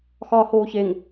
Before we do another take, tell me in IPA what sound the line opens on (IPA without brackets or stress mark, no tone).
x